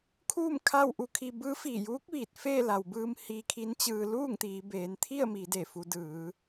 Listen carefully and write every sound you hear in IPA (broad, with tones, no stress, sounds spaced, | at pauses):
kʰ uː˥˨ m kʰ a˥˨ w ʔ u˧ kʰ i˧ b ɯː˧˥ f iː˧˩ j uː˧˥ k̚ ʋ iː˧˩ t̚ f eː˥˨ l a˩ w b ɯː˧ m h iː˧ kʰ i˧˥ n t͡ɕ ɯː˧ l uː˥˨ ŋ t̪ iː˩˧ b eː˩˧ n t̪ʰ i˥˨ ə̯ m iː˩˧ d e˧˩ f u˩˧ d ɯː˩˧